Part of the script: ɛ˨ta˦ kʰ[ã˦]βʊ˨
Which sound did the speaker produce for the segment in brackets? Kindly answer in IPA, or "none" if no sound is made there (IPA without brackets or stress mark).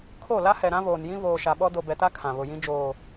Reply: ã˨